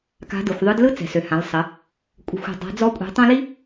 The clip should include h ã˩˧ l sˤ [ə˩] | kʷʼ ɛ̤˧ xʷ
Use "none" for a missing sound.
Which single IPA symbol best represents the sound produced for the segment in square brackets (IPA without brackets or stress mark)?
ə˩˧